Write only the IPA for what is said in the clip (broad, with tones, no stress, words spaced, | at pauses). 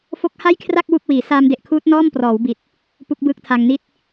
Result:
fo˦˥k̚ha˥˩jkʰra˥˩k̚ wu˥˩k̚wiː˩˦ saː˧mde˨˩ʔkʰuː˦˥t̚ nɔː˥˩mprɔː˩˦wbi˨˩t̚ | pu˦˥k̚bɯː˦˥k̚tʰa˧ŋni˥˩t̚